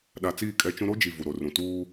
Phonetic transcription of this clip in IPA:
ɗ a˨ t͡s iː˦˨ kʼ ɛ˦ t͡ʃ ũ˦ ɾ o˦ d͡ʒ i˨ v u˨ ɾ o˨ r ũ˨ t uː˦

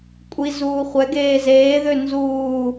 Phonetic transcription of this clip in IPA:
kʷʼ i z uː χʷ ɛ ɡ eː z eː ð ø n z uː

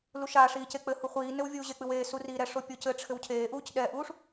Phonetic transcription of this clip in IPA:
l u ʃ a ʂ iː c e k͡p ɘ h u χʷ iː n ɘ w vʲ uː ʑ e k͡p ɨ w eː s u r iː ɾ ɛ ʂ o pʲ o c ɘ ʈ͡ʂʰ ɘ w cʰ eː ʔ uː c ɗ ɛ ʔ uː ʂ

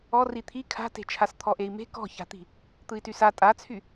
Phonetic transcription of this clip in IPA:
ɔ r i t̪ʰ i kʰ a̤ t e̤ t͡ʃʰ a s t̪ʰ ɔ ʔ e i̯ m e̤ k ɔ̤ ç a̤ t̪ i̤ | t̪ ɯ i̯ t y s a tʼ a t͡sʰ y

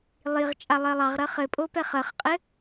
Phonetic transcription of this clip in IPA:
lˠ i ʁ t͡ʃʼ a lˠ ɜ lˠ ɑ ʁ ɾ ɜ χ ɘ pʼ o p ɛ χ ɜ χ qʼ ɘ

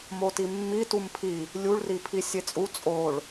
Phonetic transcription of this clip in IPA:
m o t i mː i t u m pʰ i | lʲ u ɭ r i pʰ i sʲ e t͡sʼ u t͡sʼ o ɭ

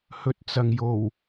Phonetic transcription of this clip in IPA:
h ɵ˨˥ t̚ t͡s ɐ˨ ŋ j o˨˩ w

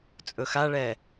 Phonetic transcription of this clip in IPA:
t͡sʼ ɵ x a ɭ ɛ

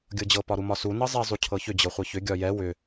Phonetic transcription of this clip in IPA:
ɡʲ ɤ d͡ʑ ɤ p ɒ ɾ u m ɒ s u n ɤ zˤ ɛ zˤ u cʰ ɤ ç ʏ d͡ʑ ɤ χʷ ɤ ç ʏ ɡʲ ɒ j ɛ w ʏ

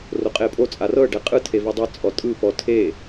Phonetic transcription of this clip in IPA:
r o qʼ e pʼ o t͡sʼ a r ɤ ɖ ɛ qʼ ɯ tʰ e v ɤ dˤ ɤ t͡sʼ ɔ tʼ ɯ p ɔ tʰ e

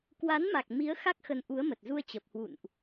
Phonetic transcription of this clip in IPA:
k w a˨˦ n m a˨˩ k̚ m i˨˦ ə̯ x a˦˥ k̚ x ə˨˦ n ʔ u˨˦ ə̯ m ə˨˩ t̚ z u˧ ə̯ t͡ɕ ə˨˩ p̚ h w ṵ˧˨ n ʔ

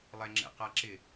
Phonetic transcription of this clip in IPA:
lˠ ɛ ŋ͡ǁ ɛ̰ q a ǁ ɪ

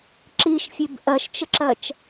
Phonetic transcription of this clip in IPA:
ǁ i ʃ fʲ e b ʔ ɜ ʃ t͡ʃ ə ǁ ɜ t͡ʃ

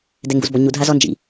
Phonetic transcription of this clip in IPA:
d ɛ ŋ ɡ ṵ z b ɔ ɲ u dʱ a z ɔ n d͡ʒ ḭ

